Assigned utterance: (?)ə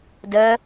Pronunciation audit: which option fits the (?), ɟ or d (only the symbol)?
d